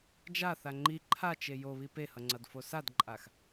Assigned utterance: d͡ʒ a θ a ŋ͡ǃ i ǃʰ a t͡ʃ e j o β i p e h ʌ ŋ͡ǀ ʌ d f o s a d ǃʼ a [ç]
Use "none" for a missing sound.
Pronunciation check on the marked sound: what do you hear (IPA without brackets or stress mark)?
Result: x